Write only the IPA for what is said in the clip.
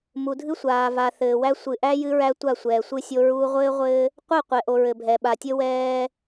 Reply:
m u˨ dʱ ɨ˦ sʷ aː˨ v a˨ θ ɘː˨ w æ˦ sʷ ɨ˨ ʔ æ˦ j ɨ˦ ɹ æ˦ tʷ a˦˨ sʷ ɛː˨ sʷ ɨ˦ sʲ o˦ ɹ uː˦ ʁʷ ɘː˦ ʁʷ ɘː˦ | qʷ ɛ˦˨ qʷ ɛ˨ ʔ o˨ ɹ ɘ˨ bʱ ɛ˨ ɓ a˨ tʲ ɘ˦ w ɛː˦

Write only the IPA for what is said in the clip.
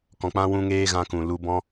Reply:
k ɔ̃˨ k͡p ã˧ w ũ˧ ŋ eː˧ ɣ ã˧ k ũ˨ l u˧ b ɔ̃˦

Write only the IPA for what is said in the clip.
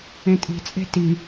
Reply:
ẽ tʼ i̤ t͡sʼ e̤ t i

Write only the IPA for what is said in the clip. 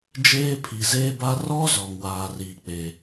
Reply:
d͡ʒ eː˦ pʰ i˨ z eː˦ b a˦ r ɔ˦ z ɔ˨ ŋ w aː˨ r iː˨ k͡p e˨

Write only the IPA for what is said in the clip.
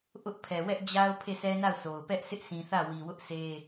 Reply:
ʔ ʊ˦ ʔ pʰ ɛ˨ w ɛ˦ ʔ d͡ʑ a˦ ʊ̯ pʰ e˦˨ sʰ ɛ˦ n a˦˨ ʊ̯ sʰ o˨ ʊ̯ p ɛ˦ ʔ s ɪ˦ ʔ sʰ ĩ˨ θ ä˦˨ w i˨ w ʊ˦ ʔ s e˦

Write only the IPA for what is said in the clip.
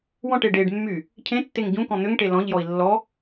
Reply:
w ɔ̃ ʈ e ɖ e ɖ mː y | cʰ ẽ tː e ŋ ɟ ũ k ɔ̃ n̪ ʏ ŋ ʈ e l ɔ̃ ʎ j ɔ i̯ lː ɔ

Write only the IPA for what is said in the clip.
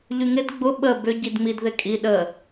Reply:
ʎ y ŋ ɪ d ɡ͡b ʊ ɓ ə b ʏ ɟ i d ŋ͡m i d ð ɪ kʼ i ɗ ə

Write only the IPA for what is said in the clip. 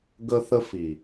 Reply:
ɡ ə˦ θ ə˦ f i˨

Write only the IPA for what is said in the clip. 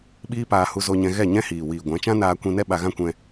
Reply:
ɓ iː˦ p aː˧ h u˧ z o˧ ɲ ɛ̃˧ ɣ ɛ˦˨ ɲ ɛ̃˦ h iː˨ w iː˨ ɡʷ ã˨˦ t͡ʃ ã˦ n aː˧ kʷ ĩ˧ n ɛ˦ ɓ a˧ ɣ ã˦ kʷ ɛ̃˧

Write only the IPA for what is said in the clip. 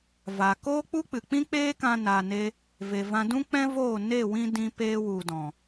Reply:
v a˨ k oː˦ k͡p u˦ k͡p ɨ˨ k͡p ĩ˦ k͡p eː˦ k ã˧ n aː˨ n e˧ | v e˨ v ã˧ d ũ˦ k͡p ɛ̃˦ v oː˦˨ n e˦˨ w ĩ˧ d ĩ˧ p eː˧ w u˨ d ɔ̃˨

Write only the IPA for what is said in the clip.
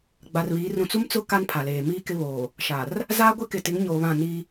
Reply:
ɡ͡b a˨ r β iː˨˦ r ũ˨ t͡s u˦ m t͡s ʊ˦ k a˦ n pʰ a˨ l eː˨ m iː˦ k ɪ˦ β oː˨ | ʃ a˨ r | z aː˦ ɡʷ ɪ˦ k ɪ˨ t ɪ˨˦ ŋ ɲ oː˨ β ã˦˨ n i˦

